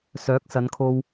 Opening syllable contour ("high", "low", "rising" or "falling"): rising